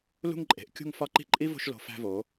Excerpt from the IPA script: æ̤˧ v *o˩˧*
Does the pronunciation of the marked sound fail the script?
no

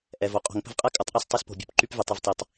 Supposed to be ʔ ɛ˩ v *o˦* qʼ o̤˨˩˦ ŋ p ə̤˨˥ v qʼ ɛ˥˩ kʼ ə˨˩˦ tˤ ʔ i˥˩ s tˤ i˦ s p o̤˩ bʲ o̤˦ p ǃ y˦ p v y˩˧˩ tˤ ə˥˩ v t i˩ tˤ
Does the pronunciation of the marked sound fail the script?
yes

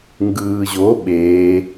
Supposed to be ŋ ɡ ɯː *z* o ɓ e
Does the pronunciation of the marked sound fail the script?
yes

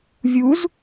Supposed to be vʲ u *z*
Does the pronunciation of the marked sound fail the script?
no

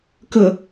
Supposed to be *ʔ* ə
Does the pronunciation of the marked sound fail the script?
yes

